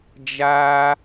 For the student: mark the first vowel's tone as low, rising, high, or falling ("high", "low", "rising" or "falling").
high